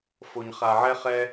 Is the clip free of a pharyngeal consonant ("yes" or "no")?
no